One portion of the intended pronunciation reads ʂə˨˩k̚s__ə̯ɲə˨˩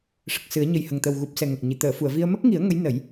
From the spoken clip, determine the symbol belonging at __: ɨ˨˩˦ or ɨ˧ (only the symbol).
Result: ɨ˨˩˦